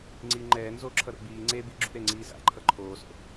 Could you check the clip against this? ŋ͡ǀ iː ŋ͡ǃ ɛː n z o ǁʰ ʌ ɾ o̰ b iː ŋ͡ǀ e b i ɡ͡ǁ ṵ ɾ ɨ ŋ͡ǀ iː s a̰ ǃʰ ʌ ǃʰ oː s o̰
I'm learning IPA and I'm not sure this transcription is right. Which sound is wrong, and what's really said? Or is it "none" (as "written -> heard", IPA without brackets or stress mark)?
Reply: ɨ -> e